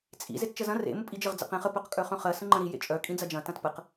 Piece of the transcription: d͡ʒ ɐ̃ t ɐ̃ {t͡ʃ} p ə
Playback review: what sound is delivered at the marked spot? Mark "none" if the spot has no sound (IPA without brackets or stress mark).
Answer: t